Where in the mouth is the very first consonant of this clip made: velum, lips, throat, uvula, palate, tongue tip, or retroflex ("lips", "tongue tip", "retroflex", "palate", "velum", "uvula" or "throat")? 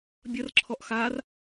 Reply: lips